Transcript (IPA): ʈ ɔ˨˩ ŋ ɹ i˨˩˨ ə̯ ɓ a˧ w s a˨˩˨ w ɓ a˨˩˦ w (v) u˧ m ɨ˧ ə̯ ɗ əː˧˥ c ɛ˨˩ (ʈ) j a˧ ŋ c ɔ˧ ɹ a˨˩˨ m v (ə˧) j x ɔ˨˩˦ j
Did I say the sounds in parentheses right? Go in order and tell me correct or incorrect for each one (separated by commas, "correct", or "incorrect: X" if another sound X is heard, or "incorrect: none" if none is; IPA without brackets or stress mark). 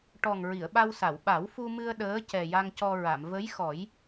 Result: incorrect: f, incorrect: none, incorrect: ə˧˥